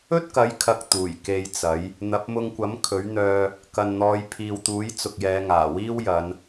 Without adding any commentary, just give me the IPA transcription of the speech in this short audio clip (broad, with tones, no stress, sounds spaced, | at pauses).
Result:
ɵ˥ t̚ k ɐ˨˥ j kʰ ɐ˨ k̚ t̪ uː˨˩ j k e˧ j t͡s ɐ˨˥ j | n̪ ɐ˨˥ p̚ m ʊ˧ ŋ kʷ ɐ˨˥ m kʰ ɵ˨˥ ɥ n̪ œː˧ | k ɐ˨ n n̪ ɔː˨˧ j pʰ iː˨ w t̪ uː˨˥ j t͡s ʊ˨ k̚ j ɛː˨˧ ŋ aː˨˩ w iː˥ w j ɐ˨˧ n